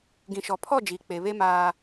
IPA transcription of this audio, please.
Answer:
ɡ ĩ˨ ʃ ɔ˨ pʰ ɔ˦˨ d͡ʒ iː˨ k͡p e˨ β e˦ m aː˨

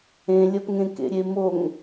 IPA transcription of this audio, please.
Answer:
ẽ lʲ ɐ p ŋ ẽ k ḛ ɾʲ e m o ŋ

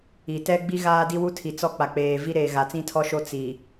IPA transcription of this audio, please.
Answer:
i˨ t ɛ˦ ɡ͡b i˦ ɣ aː˦ d i˦ w u˦ tʰ i˨ t͡s ɔ˦ k͡p a˨ k͡p eː˨ v i˦ ɾ eː˨ ɣ a˨ t͡s ĩ˦ tʰ ɔ˦ ʃ o˦ t͡s i˨

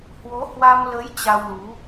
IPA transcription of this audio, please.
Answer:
h w o˨˦ h w a˧ m l ə˨˦ j t͡ɕ a˧ w l u˨˦

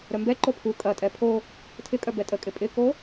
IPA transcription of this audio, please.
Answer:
ɾ œ m b ɛ ǃ o pʰ u kʼ ɐ tʼ ɛ pʰ o | tʰ ɪ kʼ œ b ɛ tʼ ə kʼ ɪ pʼ ɪ k o

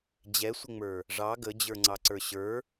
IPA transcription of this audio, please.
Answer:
d͡ʑ ɛ sʷ ɪ ŋ͡m ə˞ | ʐ ɑ ɡ ə d͡ʑ ə˞ ŋ͡ǀ ɑ ǀ ə˞ ɕ ə˞

